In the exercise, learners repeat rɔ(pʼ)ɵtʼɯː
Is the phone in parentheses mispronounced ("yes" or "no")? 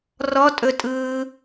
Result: yes